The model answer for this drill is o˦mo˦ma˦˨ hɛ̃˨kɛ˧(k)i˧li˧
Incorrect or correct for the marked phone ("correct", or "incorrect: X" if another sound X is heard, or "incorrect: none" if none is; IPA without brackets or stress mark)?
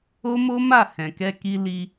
correct